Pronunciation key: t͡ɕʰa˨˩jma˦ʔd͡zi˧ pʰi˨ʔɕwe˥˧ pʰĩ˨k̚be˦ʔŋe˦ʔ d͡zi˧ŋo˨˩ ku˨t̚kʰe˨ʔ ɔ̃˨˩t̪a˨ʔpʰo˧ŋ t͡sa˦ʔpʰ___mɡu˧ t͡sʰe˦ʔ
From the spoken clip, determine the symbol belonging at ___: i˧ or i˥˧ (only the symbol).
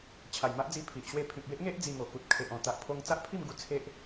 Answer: i˥˧